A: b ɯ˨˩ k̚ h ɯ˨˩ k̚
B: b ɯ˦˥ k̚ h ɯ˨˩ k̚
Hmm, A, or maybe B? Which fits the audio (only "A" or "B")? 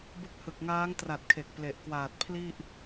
B